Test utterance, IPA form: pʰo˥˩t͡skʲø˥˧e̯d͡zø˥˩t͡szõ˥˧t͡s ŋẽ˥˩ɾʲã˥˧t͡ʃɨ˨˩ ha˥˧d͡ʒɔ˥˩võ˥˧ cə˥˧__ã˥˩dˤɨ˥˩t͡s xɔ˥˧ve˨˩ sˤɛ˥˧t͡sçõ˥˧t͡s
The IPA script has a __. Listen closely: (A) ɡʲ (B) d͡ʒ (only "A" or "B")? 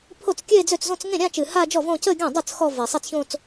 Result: A